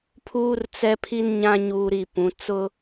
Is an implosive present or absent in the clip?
absent